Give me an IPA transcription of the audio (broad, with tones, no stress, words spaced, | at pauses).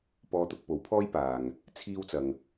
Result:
pɔː˧t̪ʊ˧k̚po˨˥wpʰɔː˥j paː˨ŋ | t͡sʰiː˥wt͡sɐ˧ŋ